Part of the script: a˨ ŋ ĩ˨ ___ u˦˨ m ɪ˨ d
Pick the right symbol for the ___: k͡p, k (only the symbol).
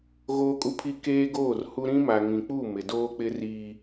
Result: k͡p